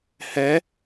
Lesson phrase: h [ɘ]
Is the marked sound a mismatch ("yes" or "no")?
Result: yes